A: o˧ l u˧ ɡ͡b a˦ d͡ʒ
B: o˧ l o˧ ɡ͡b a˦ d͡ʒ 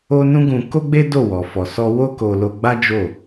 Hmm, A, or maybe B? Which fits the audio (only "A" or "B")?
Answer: B